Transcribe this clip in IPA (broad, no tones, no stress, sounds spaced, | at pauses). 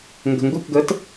ŋ ɡ ə̤ ŋ ɡ u k ɡ əː t